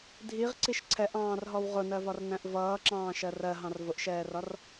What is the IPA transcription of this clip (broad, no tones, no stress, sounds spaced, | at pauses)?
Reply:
dʱ i ʁ ǀ i ʃ ǀʰ ɛ ʔ ɑ̃ː r ɦ ɔ w ʁ ʊ n ɜ v ɒ r n æ̃ ʔ v ʌː ǁ ɑ̃ː ʃ ɜ r ɜ ɦ ɑ̃ r v ʊ ʔ ʃ ɛː r ɒ r